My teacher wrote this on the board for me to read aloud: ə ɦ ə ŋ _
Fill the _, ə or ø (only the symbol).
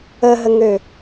ø